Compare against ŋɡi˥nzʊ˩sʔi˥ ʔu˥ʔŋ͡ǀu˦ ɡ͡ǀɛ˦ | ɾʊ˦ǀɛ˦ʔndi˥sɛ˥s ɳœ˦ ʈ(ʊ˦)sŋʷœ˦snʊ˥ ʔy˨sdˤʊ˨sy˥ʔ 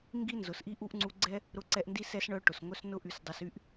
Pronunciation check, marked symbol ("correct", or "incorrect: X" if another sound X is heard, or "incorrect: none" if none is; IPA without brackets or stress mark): incorrect: ʊ˩